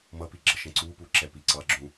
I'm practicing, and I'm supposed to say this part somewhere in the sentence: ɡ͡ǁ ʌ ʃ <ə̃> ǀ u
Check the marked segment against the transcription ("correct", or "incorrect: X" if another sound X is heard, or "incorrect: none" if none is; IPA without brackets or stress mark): correct